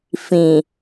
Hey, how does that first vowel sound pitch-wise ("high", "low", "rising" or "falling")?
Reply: low